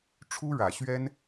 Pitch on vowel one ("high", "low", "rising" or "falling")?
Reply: high